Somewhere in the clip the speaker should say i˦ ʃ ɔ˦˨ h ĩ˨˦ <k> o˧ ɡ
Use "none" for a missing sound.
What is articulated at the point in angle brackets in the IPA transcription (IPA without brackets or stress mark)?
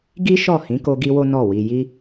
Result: k